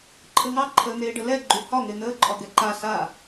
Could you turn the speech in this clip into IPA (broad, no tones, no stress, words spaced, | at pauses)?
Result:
ǃʰəŋɑ ǃʰəːn̪eːɖəlɛ ɡ͡ǃyhɒ ŋen̪əː ǃʼɒɡɛǃa sa